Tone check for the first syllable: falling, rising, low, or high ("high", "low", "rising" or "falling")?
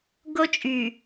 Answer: high